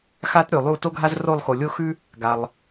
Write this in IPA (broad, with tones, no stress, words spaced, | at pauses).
xa˥tɾʲo˩lˠu˦˨ to˥ɡʱa˥z ro˦˨lˠxo˩lʲo˥xʉ˥ | ɡa˩lˠ